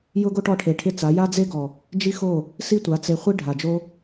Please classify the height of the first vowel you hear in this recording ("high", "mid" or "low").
high